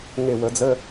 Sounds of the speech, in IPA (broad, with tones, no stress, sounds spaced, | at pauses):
ŋ e˧˩ w ə˨˩˦ d͡z ə˧˥˧